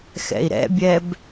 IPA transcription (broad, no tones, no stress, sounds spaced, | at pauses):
x ɛ̰ i̯ ɾ ɛ̰ bʲ ɛ b